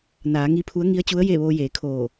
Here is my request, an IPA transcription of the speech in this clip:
n aː˩˧ ŋ i˧ pʰ u˧˥ ə̯ ŋ i˧˥ ə̯ t͡ɕ u˧˥ ə̯ j e˥˨ ʋ oː˧ j eː˩˧ kʰ oː˧˩

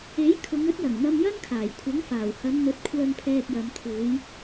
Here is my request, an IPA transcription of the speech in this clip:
e˨˥ j kʰ ʊ˨˧ ŋ ɵ˨˥ t̚ j ɐ˨˩ ŋ n̪ ɐ˧ m j ɐ˥ n kʰ aː˨˩ j kʷʰ ɐ˨˥ ŋ f aː˨˩ w h ɐ˨˧ n n̪ ɵ˨˥ t̚ kʷʰ œː˧ ŋ pʰ ɛː˧ k̚ j ɐ˨˧ m t̪ʰ uː˨˧ j

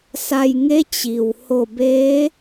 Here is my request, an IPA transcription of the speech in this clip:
s a˧ j ŋ e˧˥ t͡ɕ i˩ w h o˧˩ b eː˧˥

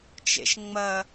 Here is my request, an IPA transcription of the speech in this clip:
t͡ʃ ḛ ʃ ŋ͡m ɐ

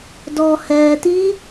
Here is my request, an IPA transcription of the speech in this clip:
d ɔ h ɛ t i

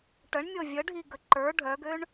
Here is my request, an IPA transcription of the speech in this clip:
ʈ ə ɳ mʲ ɤ vʲ ə ɖʱ i ɡ ə ǃ ə˞ ɖʱ œ ɡ ø ɳ

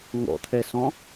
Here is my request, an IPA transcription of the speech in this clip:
ŋ ɔ̰ t̪ʰ ɛ s ɔ̃

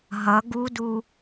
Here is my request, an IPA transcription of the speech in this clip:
ɦ ʌ ɡ u d u

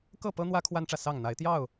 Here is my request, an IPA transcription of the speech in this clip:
k ɤ˥˨ p ɤ˦ n̪ w ä˦ kʰ w a˦ n ʈ͡ʂ ä˨ s ɑ˥˨ ŋ n̪ a˨˦ ɪ̯ t̪ j ɑ˥˨ ʊ̯

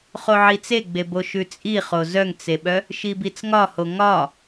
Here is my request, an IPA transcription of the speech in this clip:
χ o ʕ i t͡s e ɡ͡b e b o ʃ ʉ t͡sʼ i χ o z œ ŋ t͡s e ɓ œ | ʃ i b i t͡s ŋ ɒ h o ŋ ɒ

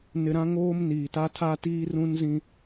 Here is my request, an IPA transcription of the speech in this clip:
n ɪ˨ ɾ ã˦ ŋ oː˦ m n iː˨ t a˦ tʰ a˦ t iː˦ r ũ˦ n z ĩ˦

